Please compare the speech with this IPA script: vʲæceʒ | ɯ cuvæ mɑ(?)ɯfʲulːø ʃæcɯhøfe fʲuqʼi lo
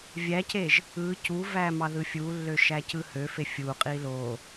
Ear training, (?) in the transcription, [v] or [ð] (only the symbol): ð